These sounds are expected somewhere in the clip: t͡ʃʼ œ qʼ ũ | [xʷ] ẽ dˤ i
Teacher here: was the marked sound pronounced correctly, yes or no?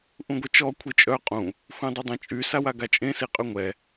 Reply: yes